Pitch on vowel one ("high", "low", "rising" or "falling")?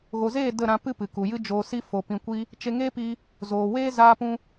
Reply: low